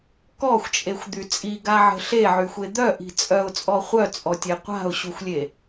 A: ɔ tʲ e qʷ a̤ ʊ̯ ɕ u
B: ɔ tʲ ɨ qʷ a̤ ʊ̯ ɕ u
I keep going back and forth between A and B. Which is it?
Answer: A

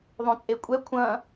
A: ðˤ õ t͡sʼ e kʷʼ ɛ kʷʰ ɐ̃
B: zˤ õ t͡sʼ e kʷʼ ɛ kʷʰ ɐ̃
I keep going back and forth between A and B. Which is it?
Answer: A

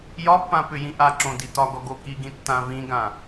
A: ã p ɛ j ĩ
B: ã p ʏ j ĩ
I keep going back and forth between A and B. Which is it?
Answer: B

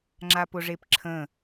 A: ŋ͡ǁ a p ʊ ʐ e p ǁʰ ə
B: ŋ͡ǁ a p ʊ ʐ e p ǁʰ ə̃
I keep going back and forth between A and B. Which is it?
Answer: B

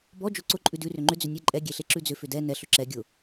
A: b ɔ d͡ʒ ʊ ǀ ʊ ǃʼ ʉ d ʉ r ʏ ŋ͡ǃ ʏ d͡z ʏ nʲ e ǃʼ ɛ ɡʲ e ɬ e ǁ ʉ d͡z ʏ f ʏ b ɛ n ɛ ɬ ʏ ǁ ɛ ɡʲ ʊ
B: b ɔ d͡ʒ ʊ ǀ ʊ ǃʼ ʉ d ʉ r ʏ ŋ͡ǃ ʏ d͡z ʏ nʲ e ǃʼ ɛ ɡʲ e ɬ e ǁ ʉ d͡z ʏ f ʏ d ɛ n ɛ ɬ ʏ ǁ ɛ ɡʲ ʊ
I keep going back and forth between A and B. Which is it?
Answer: B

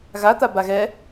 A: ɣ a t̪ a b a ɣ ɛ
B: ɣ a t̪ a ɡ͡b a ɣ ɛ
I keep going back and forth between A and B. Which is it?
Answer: A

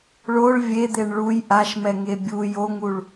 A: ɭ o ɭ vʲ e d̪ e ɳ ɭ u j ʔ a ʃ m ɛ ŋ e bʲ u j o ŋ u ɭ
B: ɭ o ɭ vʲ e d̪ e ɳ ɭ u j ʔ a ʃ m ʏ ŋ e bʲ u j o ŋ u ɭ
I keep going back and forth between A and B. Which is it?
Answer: A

